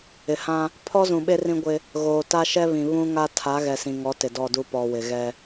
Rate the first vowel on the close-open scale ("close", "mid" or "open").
close